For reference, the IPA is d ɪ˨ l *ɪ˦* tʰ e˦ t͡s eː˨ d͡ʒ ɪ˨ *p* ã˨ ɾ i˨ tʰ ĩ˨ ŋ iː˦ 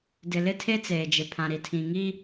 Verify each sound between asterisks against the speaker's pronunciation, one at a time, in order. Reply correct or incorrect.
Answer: correct, incorrect: pʰ

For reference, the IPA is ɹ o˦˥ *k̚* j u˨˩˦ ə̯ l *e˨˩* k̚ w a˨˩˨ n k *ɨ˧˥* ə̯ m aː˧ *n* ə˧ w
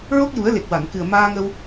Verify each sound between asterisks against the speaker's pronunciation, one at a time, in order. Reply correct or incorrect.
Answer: correct, correct, incorrect: ɨ˨˩, incorrect: ŋ

